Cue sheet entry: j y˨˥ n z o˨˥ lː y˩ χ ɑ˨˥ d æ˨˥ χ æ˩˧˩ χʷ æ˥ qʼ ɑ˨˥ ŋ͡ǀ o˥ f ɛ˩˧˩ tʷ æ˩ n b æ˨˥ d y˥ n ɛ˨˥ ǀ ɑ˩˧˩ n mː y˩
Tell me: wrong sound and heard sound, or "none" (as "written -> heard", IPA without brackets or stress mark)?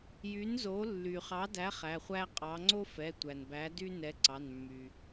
none